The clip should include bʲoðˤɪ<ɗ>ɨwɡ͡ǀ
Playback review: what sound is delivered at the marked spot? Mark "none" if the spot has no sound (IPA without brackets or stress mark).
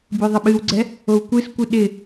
ɓ